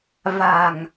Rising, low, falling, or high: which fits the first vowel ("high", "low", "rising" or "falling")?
low